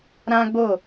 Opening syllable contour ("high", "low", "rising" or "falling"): high